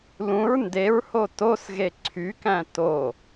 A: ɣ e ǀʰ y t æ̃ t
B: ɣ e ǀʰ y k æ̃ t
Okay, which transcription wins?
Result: B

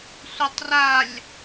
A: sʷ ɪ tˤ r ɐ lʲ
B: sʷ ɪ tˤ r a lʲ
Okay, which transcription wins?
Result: B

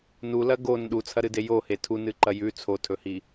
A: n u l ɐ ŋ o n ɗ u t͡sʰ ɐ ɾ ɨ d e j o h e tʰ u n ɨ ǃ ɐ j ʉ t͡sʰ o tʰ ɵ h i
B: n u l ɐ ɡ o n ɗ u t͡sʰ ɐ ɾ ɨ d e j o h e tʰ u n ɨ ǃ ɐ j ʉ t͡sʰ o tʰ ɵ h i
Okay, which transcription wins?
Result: B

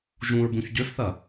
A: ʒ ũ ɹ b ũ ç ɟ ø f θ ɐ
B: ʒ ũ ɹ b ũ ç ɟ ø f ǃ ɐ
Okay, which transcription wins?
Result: A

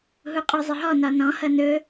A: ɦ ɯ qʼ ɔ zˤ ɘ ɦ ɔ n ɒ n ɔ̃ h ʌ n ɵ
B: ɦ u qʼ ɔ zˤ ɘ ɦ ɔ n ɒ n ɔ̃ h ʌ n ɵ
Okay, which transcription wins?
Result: B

